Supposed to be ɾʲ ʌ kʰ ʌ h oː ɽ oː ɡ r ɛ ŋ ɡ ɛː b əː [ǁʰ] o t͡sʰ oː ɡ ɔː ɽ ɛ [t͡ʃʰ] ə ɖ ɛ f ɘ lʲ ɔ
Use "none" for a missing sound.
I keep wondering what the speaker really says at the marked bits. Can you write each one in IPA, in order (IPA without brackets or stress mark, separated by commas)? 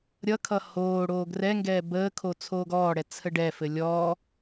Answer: kʰ, t͡sʰ